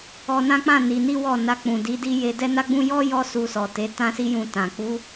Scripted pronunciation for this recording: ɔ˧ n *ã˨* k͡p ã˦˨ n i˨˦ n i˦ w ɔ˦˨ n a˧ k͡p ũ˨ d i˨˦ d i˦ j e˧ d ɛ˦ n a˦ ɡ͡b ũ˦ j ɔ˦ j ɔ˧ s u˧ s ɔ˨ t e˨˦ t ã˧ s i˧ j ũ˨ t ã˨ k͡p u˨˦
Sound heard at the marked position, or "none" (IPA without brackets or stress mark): ã˦